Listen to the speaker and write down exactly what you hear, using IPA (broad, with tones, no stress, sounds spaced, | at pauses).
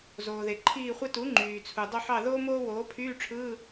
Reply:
z oː˩ ð e˩ ǃʰ iː˦˨ χʷ e˥ t u˩˥ ŋ͡ǃ yː˩ t͡sʰ u˩ dˤ o˦˨ ħ ɑ˦˨ ð oː˥ m oː˥ w oː˩˥ pʰ yː˧˥˧ ʈ͡ʂʰ ɯː˧˥˧